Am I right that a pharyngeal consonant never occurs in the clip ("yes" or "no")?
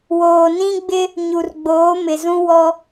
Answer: yes